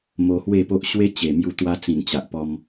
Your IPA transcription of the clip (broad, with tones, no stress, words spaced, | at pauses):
mo˧hwe˥˧po˦ʔ ɕwe˦t͡ɕe˨˩mju˧t̪wa˧ t͡sĩ˨˩nt͡ɕa˨ʔpɔ˧m